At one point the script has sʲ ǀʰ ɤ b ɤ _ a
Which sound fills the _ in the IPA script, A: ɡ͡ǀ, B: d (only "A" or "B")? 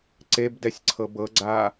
A